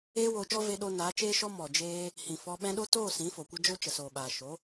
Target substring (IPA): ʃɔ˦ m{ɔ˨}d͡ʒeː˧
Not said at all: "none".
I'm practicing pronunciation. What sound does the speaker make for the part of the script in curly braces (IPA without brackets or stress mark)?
ɔ˨